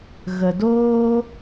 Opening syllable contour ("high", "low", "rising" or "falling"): low